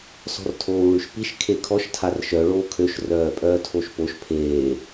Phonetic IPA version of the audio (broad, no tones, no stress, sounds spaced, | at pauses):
s ɔ̤ r tʰ oː w ɭ y ʃ p i ʃ kʰ e kʰ ɔ ʃ tʰ a r ʃ œ ɭ oː kʰ ø ʃ r œː pʼ œː tʰ o ʃ p o ʃ pʰ eː